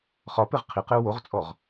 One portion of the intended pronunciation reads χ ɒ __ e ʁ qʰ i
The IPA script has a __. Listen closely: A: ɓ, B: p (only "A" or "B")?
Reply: B